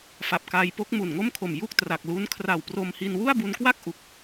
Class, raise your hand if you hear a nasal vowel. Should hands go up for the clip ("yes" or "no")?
no